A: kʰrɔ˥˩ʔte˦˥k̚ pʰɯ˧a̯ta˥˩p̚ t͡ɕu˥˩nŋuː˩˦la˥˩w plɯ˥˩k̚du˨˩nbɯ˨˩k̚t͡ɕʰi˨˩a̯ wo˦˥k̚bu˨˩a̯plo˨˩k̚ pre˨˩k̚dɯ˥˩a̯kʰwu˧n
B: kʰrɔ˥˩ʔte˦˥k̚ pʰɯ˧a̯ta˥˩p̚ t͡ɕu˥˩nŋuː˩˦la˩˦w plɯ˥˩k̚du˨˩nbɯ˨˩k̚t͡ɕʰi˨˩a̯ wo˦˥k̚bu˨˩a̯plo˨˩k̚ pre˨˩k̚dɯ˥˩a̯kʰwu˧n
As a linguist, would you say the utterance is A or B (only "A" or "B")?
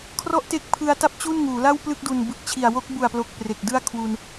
A